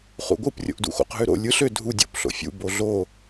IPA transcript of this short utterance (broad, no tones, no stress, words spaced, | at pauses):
χṵɡʷɯp rʲo̰ʔdṵxo̰q ɦøɾo̰ lʲɯɬ ø dʱu dʲo̰p ɬo̰fʲṵ boɮo